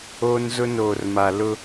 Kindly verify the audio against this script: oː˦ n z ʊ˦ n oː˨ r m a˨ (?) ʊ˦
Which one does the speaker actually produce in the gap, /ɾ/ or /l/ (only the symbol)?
l